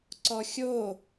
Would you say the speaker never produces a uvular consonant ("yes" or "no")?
yes